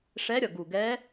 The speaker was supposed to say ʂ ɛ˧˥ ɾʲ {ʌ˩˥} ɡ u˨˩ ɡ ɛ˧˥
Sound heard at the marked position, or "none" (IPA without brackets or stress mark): ʌ˨˩